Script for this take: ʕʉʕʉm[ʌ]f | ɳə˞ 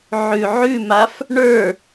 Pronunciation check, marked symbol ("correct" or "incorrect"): incorrect